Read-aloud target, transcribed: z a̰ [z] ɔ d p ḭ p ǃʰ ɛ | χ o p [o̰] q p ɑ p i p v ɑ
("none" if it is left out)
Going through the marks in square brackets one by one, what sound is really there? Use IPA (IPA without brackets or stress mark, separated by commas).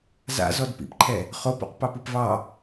z, o̰